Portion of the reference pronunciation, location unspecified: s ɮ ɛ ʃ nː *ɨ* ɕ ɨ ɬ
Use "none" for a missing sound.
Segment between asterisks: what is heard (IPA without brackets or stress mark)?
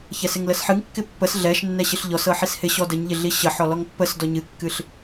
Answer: ɛ